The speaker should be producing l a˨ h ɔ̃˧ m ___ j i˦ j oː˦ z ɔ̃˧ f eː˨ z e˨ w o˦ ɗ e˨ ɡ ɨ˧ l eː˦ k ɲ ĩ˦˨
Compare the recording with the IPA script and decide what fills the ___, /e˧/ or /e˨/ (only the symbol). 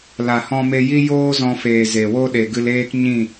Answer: e˧